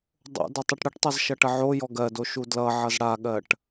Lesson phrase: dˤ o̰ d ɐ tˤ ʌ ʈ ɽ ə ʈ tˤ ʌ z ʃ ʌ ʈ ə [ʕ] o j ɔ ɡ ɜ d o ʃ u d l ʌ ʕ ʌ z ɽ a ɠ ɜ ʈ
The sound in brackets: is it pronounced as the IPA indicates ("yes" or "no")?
yes